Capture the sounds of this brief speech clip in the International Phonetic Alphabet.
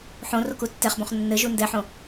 ħõroku tːɛχbõχ nːɘʒu ndɛħõ

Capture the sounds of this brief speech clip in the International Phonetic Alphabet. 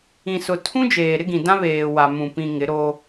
ĩ˨sʊ˨ tʰũ˦d͡ʒeː˨ ɾɪ˦ɡĩ˨dã˦ βeː˨wa˨ mũ˨pĩ˨ ŋɪ˨˦ɾo˦

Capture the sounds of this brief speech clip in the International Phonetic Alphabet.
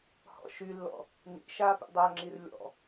hɔ̰ʃylːɔ̰ | nḭ ʃapḭ dˤaŋ͡ǁir lʲɔ̰

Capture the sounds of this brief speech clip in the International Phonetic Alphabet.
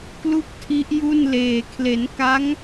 klu˥˩k̚tʰi˦˥ʔju˥˩nleː˨˩ kʰle˩˦nka˦˥ŋ

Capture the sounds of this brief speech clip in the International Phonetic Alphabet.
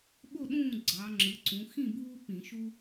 ɓo˥˩ɗũː˥˩ ɡ͡ǀɑ˩˧ŋ͡ǁɯ˩˧ǀũ˩˧ xĩ˥˩buː˦ pĩ˧˩˧ʃu˦

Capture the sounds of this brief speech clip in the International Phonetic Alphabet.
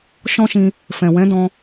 ʃɔ̃˦ʃĩ˧ | fɛ̃˨wɛ̃˨˦dɔ̃˧

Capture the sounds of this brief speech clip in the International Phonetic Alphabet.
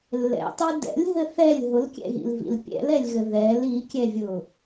lːɛ̰tˤø dɛ̰lʲɦɘ θɛlʲ ɦʊlkʲɛ̰ɣḭlvḭl pʲɛ̰lɛlʲɣɘ ðɛl ikʲɛvʲʊ

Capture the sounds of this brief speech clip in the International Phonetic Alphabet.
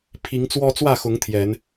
pʰi˨˦ŋt͡swɔ˦ t͡swä˥˨xʊ˨˦ŋ t̪ʰjɛ˨˦n

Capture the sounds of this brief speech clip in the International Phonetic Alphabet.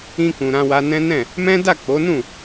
ĩ˧kũ˨ ɾã˧wa˧nɛ̃˦ nɛ̃˦˨ | mɛ̃˦ da˦˨k͡po˨˦nũ˦˨

